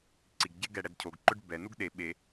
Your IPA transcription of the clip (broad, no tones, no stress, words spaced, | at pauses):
ǀiɡɟe ɡɛɽɛdcʰoɡǃʊɖ bɛnuɡ ɗe ɓe